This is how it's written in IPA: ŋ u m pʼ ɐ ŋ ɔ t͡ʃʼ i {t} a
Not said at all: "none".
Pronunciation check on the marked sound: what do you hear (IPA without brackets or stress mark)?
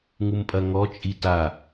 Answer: t